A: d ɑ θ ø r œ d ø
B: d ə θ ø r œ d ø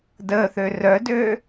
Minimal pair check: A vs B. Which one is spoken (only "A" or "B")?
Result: B